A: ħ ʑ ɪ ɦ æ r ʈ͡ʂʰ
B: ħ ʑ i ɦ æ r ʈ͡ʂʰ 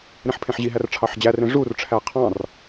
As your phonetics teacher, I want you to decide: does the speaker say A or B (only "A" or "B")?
B